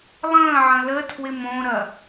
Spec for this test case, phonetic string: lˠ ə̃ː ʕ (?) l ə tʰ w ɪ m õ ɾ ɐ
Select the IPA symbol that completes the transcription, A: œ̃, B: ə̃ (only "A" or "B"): B